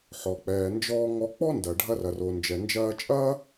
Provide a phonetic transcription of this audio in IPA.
ħɔ˩k͡pɛː˩nd͡ʒɔː˧ŋɔ˧ k͡pɔ˥ndɐ˩ɖʱɐ˧rɐ˩ ro˩nd͡ʒɛ˩nd͡ʒɐː˧t͡ʃʼɐː˥

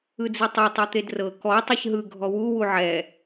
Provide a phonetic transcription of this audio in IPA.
ɯd͡zitˤe tˤɯt̪edrɤ kɔ tˤɯçɦɯ ɡʱɔwu wuʕɛ

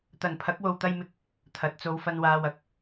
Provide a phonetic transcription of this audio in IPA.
t̪ɐ˨npʰɐ˨˥k̚ wo˧wt̪ɐ˥jmɪ˥k̚ | t̪ʰɐ˨˥t̚ t͡so˨˧wfɐ˧n waː˧wɐ˨˥k̚

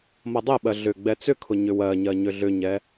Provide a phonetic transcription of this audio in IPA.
mʌdˤɛɓɜ ɮʏ ɡ͡bɛt͡sʏkʰʊ ɲʏwɜɲɜ ɲʏɮʏɲɛ

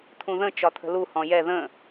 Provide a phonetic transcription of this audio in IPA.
t̪ʰũðə̃ t͡ʃɒt̪ʰə̤lu hɔ̃jɛ ðə̃

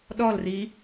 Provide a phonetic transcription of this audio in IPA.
ɗɔlri

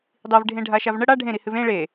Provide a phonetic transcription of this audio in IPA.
dˤivɖʱẽ ɖʱaʃavɳə ɽa ɖʱẽɾihɨv ẽ ɭe

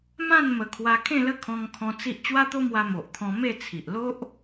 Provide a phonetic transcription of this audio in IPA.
mã˥˧n mə˧ kʰwa˧kʰẽ˥˧lə˦ kʰɔ̃˧ŋkʰɔ̃˧ t͡si˦ʔ t͡ɕwa˦t̪o˦mwa˧ mo˨ʔt̪ʰɔ̃˧ me˥˧t͡sʰi˨ʔ lo˦ʔ

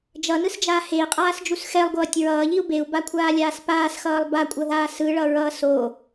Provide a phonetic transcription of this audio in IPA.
d͡ʒʌnɯsd͡ʒaː hei̯qʼaːsd͡ʒus xɛlˠɡʷʌːtʲ ɹʌːʎiu̯ beu̯bakʷʰaːlʲaːs paːsxʌːlˠ bakʷʼʌðaː sɯɭʌɹʌː so

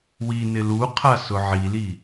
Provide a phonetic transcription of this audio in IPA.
wi nɪluqʰa sʊʕili

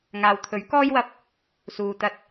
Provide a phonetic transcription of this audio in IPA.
ŋaː˨wt̪ʰɵ˨˥ɥkɔː˥jwɐ˧p̚ | suː˨t̪ɐ˧t̚

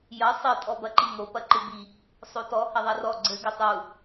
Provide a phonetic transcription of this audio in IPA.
jɐ sˤɘ tʼɔbɐǃiŋo pɐǃɨbi | sˤotɔ hɐðˤɐrɔ ɡ͡ǀɘ ɡɘtˤu

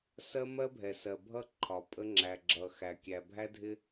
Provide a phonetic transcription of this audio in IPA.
sɜ˦mɜ˦bʱɛ˨sɜ˨ bʱʌ˦ ǃʰɒ˨pʼə˦ ŋ͡ǁæ˨ɡ͡ǁʌ˨ xæ˨kʲæ˨bʱæ˦ dʱɪ˦

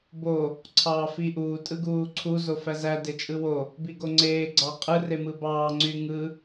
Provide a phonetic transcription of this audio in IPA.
bo | ǀʰɑːfiʔuː tʼɯɡuːǀʰu zofæzæ det͡ʃʼɯwo | biɡoŋ͡ǀeː ɡ͡ǀɑqʼɯ remɯbɑː ŋ͡ǀyŋɯ

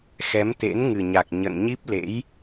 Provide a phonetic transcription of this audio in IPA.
xɛ˨˦mt̪ḛ˧˥n ŋɨ˨˩ɲa˨˩k̚ ɲə̰˧˨n ɲi˦˥p̚lḛ˧˥j

